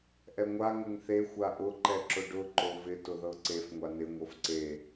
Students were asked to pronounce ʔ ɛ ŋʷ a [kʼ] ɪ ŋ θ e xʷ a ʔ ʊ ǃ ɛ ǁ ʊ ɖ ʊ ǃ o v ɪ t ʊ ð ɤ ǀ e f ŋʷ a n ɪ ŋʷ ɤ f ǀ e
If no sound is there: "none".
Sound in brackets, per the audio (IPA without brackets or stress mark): ŋ